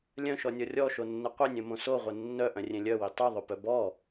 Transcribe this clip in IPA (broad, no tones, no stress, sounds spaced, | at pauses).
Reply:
lʲ œ̃ ʃ ɔ nʲ ɔ rʲ ɔ ʃ o nː ə qʷ ɘ nʲ œ̃ m õ s o ʁʷ ə nː œ ʔ œ̃ rʲ ẽ lʲ œ w i tˤ o ðˤ o p œ b ɔ